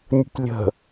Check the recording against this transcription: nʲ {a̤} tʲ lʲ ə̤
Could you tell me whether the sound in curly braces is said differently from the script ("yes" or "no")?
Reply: yes